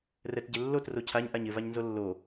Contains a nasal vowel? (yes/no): no